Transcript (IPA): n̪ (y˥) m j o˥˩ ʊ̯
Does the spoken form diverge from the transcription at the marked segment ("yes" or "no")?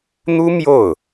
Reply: yes